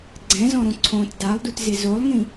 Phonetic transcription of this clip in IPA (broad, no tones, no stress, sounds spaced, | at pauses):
ɡ͡ǀ ɛ̃ z ɔ̃ ɾ õ ǀʰ õ t d a lˠ d u t z ɪ z o lˠ ŋ ĩ